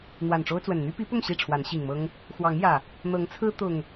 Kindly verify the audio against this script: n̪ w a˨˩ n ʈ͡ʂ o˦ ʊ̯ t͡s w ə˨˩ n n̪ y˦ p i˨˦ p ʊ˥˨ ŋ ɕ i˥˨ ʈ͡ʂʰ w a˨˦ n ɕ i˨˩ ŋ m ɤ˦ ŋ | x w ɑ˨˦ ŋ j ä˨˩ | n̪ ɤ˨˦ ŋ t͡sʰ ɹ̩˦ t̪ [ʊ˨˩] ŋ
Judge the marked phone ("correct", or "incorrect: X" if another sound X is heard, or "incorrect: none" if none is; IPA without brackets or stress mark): correct